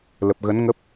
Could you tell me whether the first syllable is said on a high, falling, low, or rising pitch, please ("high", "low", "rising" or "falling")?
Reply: low